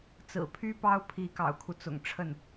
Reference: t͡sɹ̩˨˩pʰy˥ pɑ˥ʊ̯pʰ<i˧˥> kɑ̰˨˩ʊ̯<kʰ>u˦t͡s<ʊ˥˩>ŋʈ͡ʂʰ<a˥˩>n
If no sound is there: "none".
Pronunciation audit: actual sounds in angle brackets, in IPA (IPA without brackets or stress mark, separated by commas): i˧˥, kʰ, ʊ̰˨˩, ə˥˩